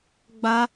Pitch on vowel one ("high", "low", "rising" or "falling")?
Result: high